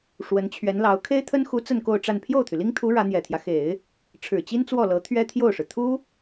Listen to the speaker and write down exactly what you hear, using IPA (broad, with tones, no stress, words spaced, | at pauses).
ʂwə˧˥nt͡ɕʰɥɛ˧˥nlɑ˧˥ʊ̯ kʰe˥ɪ̯t̪ʰə˥nxu˧˥ t͡sə˥˧nko˥˧ʊ̯ʈ͡ʂa˥˧n pʰjo˥˩ʊ̯t̪ʰy˩li˥ŋt̪ʰu˧˥ ɻä˧˥n̪jɛ˨˩t̪ʰjä˦ xe˨˩˦ɪ̯ | ʈ͡ʂʰɻ̩˨˩t͡ɕi˥nt͡swɔ˥˩lɤ˧˥ t̪ʰɥɛ˥t̪ʰjo˥˩ʊ̯ʂɻ̩˩ t̪ʰu˥